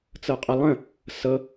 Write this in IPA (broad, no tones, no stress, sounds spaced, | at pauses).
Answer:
t͡s ɤ qʼ ə lˠ ə̃ | s ɤ